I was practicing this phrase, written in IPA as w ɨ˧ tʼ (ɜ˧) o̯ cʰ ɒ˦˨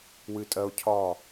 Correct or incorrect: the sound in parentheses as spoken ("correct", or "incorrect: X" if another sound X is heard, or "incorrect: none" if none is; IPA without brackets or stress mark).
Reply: correct